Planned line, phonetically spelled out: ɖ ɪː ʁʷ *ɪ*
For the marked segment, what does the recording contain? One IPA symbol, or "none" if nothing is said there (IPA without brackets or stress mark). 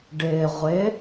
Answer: ɪ